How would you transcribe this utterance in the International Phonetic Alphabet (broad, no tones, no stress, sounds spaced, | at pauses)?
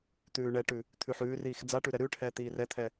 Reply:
t̪ ʉː ɳ ɛ ʈ ʉ | t̪ʰ ʉ ħ ʉː r iː x d͡z a ʈ ʉ ɾ ɛ ɾ ʉː ʈ h ɛː t̪ iː r ɛ t̪ʰ ɛ